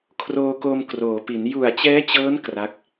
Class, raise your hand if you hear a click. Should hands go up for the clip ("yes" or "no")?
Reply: no